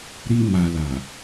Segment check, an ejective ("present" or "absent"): absent